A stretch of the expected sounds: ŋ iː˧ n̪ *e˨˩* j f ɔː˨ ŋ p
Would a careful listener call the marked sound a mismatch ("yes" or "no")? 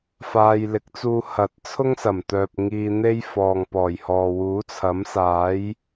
yes